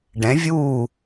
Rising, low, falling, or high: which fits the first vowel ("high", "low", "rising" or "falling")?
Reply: rising